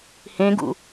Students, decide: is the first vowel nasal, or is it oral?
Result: nasal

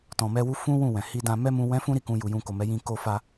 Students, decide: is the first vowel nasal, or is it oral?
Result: nasal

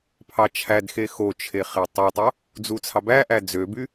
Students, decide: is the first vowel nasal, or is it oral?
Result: oral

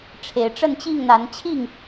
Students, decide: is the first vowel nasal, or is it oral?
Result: oral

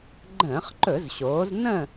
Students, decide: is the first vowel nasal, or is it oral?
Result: nasal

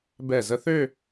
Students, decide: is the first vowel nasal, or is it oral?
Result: oral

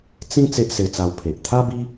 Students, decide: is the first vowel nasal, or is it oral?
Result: nasal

